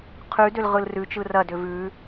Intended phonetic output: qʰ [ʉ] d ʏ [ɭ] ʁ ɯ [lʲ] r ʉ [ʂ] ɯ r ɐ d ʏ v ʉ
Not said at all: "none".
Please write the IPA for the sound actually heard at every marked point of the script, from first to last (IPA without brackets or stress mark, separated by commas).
ʉ, l, l, t͡ʃ